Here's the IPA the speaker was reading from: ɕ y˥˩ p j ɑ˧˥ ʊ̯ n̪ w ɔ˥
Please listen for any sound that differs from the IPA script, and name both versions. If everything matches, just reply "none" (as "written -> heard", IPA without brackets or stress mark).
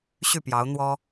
none